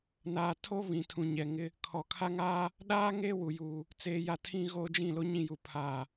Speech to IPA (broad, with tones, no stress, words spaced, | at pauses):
naː˨tʰo˦ βĩ˨tʰũ˨ɲɛ˨ŋɪ˦ | kʰɔ˨kʰa˦ŋaː˦ | ɗaː˦ ŋeː˦wu˨juː˨ | t͡seː˨ja˨ tʰĩ˦ɣoː˦d͡ʒĩ˦˨ lo˦ɲĩ˦˨ju˨ pʰaː˨